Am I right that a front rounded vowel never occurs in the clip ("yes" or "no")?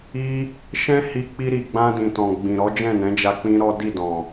yes